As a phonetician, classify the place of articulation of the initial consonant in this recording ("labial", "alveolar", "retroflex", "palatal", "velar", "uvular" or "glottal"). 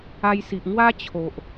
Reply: palatal